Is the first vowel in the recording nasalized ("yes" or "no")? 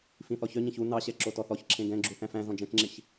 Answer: yes